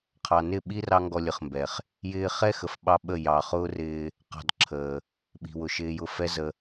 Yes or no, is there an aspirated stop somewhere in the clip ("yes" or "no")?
yes